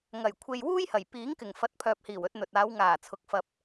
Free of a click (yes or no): yes